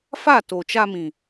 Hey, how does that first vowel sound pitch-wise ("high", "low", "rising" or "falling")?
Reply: falling